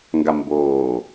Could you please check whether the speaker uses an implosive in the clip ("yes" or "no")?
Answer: no